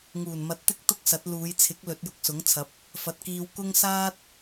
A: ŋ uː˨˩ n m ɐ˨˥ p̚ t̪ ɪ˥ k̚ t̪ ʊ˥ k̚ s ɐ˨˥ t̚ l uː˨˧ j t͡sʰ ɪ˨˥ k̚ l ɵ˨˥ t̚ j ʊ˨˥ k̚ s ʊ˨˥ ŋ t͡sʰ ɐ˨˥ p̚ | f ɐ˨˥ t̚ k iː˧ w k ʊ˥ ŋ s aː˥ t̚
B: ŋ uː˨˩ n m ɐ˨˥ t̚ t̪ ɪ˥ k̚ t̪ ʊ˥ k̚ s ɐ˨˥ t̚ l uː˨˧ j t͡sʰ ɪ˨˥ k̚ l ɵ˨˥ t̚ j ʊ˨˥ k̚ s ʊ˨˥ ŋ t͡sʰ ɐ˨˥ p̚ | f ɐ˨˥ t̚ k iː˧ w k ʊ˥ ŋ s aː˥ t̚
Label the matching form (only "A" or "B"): B